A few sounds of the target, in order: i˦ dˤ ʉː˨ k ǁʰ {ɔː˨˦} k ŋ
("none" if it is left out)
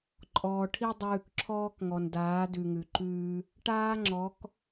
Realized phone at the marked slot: ɔː˦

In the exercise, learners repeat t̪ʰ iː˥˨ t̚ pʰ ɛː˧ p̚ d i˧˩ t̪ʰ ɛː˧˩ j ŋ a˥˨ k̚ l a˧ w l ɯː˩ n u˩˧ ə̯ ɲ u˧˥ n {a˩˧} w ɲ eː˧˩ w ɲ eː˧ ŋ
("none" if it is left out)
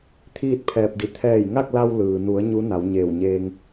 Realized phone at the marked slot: a˩˧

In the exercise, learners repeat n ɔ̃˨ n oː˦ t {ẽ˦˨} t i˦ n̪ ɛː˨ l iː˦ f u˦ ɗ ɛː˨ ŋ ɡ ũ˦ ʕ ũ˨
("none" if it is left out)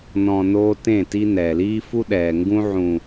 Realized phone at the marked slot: ẽ˦˨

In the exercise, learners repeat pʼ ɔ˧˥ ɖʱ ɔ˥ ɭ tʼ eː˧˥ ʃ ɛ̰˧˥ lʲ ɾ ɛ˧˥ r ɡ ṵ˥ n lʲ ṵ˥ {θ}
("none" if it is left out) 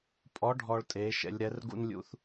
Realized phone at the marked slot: θ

